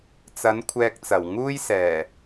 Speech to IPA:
t͡sɐ˨˥n kʷʰɛː˧k̚t͡sɐ˨˩w ŋuː˥jsɛː˨˩

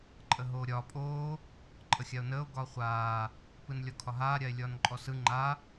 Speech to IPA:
ǃʼəɦoːɾʲɒː pʼoː | ǃʼəxʲao̯nəːo̯ ɡɒːχʷaː | pɯnlʲɒkʰɒɦaː ɾʲae̯lʲɒːnǃʼɔsɯ ŋ͡ǃa

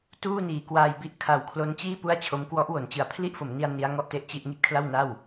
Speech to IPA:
tuː˥˩niː˨˩kwaː˧jbi˦˥ʔ kʰa˩˦w kʰlo˦˥nt͡ɕiː˥˩ pu˥˩a̯t͡ɕʰo˦˥m kwɔ˦˥ʔwo˩˦nt͡ɕɯ˨˩a̯ pʰli˥˩ʔfo˩˦mni˧a̯ ni˦˥a̯ŋɔ˥˩ʔte˥˩ʔt͡ɕi˥˩ʔ ŋi˥˩t̚kʰla˥˩wna˥˩w

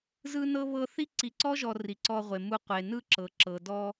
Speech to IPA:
zɯ˦nɤ˦ βɤ˦θi˥ ǀi˨ǀɔ˥ʒɔ˨ ri˩ǀɔ˨ʁʷe˩ mu˨qʷe˩ nɯ˦ǁɤ˩ǁɤ˩ dɔ˦

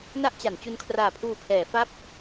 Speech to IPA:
na˥˩ʔt͡ɕa˩˦n t͡ɕu˧nkʰraː˨˩pʰuː˨˩pʰɛː˩˦ fa˦˥p̚

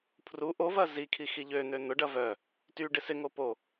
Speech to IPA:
pʰru ʔovɐ zikʰi xiʎøn̪ø n̪ʊɖɐ vœ | ty ɖɪsɪŋo po

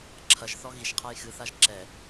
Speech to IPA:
ǁʰɐʒθɔ ɣiʃqʰaj xɨθaʒ ǁɛ

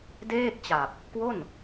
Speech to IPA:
deː˥˩k̚t͡ɕa˨˩p̚ | kwo˥˩n

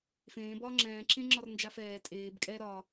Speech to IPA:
fẽː bɒːŋ͡ǁɛ̃ː ǁẽŋ͡ǁɒrnd͡ʒafɛː tʼeːb kʼɛ ɾɒ

